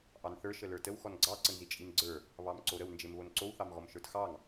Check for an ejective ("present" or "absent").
present